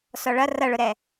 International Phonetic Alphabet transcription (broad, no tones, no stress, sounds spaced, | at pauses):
s ɔ ɭ ʌ r ʌ ɭ ʊ ɾ ɛ